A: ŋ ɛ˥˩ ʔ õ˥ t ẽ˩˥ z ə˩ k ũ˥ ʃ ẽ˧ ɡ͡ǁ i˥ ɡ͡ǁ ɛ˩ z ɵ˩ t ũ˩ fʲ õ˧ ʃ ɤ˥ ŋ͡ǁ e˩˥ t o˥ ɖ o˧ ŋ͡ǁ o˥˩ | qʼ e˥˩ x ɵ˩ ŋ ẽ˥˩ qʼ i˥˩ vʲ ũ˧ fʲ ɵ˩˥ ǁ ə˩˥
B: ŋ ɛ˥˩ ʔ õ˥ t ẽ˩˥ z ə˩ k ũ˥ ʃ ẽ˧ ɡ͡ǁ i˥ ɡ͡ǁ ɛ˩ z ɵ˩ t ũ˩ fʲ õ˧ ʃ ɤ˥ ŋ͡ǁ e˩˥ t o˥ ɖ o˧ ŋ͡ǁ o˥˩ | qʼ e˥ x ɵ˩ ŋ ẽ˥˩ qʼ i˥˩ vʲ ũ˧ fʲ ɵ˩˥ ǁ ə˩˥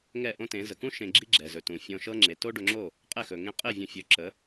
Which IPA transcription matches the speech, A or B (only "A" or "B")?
A